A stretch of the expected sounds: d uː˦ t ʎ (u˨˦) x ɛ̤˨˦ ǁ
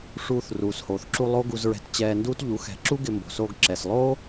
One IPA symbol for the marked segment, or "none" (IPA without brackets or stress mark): u˨˦